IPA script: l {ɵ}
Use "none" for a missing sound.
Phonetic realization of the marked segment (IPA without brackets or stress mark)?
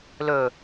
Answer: ɵ